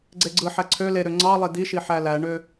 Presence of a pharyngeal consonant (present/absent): present